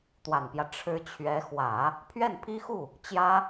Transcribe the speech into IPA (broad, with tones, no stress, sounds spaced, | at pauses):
t̪ w a˨˩ n p j ä˦ ʈ͡ʂʰ ɻ̩˧˥ t͡ɕʰ ɥ ɛ˧˥ x w ä˨˩˦ | pʰ ɥ ɛ˥˩ n pʰ i˥ x u˥˩ | t͡ɕ j ä˥